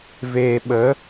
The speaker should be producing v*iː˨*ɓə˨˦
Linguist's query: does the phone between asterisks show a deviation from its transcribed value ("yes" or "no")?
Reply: yes